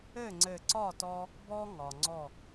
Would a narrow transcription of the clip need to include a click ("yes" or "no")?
yes